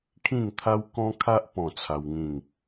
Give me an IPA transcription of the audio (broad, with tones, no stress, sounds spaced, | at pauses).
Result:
kʰ ĩ˥˧ ŋ t̪ʰ a˦ w k ɔ̃˦ kʰ a˦ ʔ p ɔ̃˥˧ t͡sʰ a˦ w ŋ ĩ˥˧ ŋ